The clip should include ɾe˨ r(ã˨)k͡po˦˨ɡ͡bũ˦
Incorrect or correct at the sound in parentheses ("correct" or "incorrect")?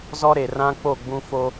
incorrect